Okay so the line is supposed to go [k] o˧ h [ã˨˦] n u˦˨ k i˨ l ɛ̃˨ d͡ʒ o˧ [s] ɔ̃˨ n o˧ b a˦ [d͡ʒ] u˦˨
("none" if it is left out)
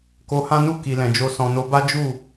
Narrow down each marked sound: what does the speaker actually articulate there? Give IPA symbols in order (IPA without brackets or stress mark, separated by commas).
k, ã˦, s, d͡ʒ